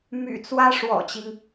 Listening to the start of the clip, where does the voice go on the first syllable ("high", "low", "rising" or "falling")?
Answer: low